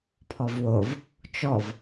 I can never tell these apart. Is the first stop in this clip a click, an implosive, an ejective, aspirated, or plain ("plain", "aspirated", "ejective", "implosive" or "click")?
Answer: aspirated